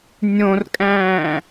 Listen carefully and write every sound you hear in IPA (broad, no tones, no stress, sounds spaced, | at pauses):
nʲ õ r kʼ æ̃ː